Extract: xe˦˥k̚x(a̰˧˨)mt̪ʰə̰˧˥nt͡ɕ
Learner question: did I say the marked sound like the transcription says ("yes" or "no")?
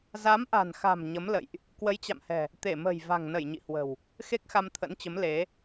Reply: no